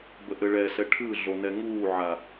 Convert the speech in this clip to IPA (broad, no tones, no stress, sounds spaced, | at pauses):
b ə ʔ ɘ ɭ ɛ s ɛ ʈʰ ɯ ɮ o n ɛ ŋ uː ʕ a